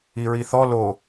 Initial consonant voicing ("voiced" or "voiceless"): voiced